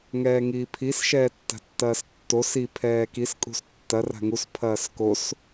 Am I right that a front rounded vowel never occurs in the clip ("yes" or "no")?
yes